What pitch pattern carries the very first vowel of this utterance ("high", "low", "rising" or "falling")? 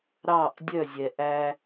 falling